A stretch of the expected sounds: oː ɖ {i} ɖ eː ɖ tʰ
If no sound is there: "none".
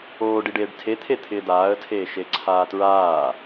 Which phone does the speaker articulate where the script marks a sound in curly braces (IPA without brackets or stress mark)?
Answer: i